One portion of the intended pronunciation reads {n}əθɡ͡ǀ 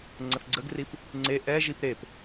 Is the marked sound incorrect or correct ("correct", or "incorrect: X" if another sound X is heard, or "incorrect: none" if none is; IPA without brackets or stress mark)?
incorrect: ŋ͡ǀ